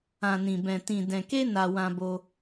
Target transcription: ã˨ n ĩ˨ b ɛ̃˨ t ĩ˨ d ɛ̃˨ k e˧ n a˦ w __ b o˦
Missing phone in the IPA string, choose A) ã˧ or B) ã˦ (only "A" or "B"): B